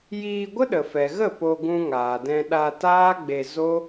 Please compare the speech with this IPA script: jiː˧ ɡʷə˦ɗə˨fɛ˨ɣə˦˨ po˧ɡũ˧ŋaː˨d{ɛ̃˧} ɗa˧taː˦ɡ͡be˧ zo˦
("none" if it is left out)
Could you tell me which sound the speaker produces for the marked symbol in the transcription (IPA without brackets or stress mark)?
ɛ̃˧